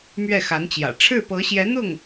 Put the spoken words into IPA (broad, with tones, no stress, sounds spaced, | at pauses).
m ɥ ɛ˥˩ x a˧˥ n t͡ɕ j ä̰˨˩ ʈ͡ʂʰ ɻ̩˥˩ p ɤ˧˥ ɕ j ɛ˧˥ n̪ ʊ˥˩ ŋ